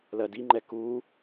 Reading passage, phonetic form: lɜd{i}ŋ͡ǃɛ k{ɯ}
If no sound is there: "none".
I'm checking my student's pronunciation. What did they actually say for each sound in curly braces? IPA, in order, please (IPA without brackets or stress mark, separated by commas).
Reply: i, u